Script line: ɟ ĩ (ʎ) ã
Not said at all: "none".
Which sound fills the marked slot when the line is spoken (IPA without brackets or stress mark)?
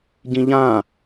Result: ʎ